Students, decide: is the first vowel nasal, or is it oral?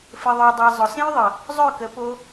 oral